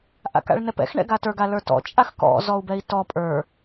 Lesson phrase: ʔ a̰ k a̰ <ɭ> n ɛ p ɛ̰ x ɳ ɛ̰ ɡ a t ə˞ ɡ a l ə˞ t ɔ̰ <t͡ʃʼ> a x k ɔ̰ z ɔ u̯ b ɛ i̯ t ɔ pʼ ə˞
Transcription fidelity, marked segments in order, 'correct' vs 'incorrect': correct, correct

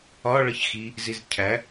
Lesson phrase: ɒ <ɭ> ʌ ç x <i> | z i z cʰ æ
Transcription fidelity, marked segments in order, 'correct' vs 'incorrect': correct, correct

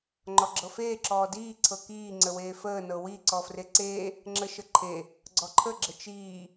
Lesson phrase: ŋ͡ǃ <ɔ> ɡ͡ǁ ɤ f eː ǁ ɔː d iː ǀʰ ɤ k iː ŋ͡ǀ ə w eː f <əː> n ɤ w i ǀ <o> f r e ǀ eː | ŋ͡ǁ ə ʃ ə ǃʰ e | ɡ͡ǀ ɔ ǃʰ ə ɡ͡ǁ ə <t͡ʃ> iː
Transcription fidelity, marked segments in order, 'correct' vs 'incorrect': correct, correct, incorrect: ɔ, correct

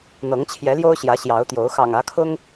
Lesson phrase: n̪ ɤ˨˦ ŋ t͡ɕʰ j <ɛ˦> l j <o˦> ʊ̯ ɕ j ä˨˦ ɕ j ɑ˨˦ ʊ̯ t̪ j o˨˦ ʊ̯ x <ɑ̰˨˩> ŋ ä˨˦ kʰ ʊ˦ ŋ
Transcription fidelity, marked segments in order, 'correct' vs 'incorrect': incorrect: ɛ˨˦, correct, correct

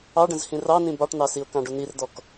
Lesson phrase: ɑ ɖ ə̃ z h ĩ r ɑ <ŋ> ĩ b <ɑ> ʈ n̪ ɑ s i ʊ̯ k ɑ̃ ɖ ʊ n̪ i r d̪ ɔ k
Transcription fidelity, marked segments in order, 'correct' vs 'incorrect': incorrect: n, correct

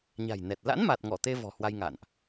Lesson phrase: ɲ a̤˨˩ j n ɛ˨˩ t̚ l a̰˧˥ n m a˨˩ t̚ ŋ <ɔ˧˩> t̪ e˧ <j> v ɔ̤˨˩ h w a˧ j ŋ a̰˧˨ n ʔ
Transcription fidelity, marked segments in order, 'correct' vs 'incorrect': correct, incorrect: none

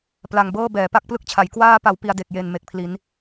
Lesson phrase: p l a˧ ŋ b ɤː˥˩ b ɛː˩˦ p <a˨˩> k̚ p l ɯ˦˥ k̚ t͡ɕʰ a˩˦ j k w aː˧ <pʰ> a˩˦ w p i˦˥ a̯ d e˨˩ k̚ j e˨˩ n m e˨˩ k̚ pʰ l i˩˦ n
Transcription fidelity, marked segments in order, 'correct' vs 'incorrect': incorrect: a˦˥, incorrect: p

